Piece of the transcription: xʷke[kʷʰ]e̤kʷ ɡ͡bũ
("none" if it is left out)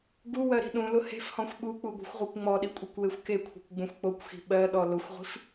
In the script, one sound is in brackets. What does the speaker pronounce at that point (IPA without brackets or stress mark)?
kʷʰ